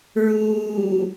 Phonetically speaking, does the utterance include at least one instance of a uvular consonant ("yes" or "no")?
no